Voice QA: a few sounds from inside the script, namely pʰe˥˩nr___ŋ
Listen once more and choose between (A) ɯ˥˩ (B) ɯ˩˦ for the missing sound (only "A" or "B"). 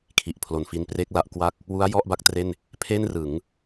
B